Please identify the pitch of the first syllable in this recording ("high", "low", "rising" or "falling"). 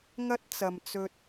high